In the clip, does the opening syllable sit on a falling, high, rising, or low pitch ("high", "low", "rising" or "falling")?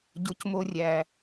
low